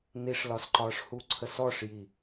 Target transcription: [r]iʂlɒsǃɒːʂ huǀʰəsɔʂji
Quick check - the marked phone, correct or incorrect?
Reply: incorrect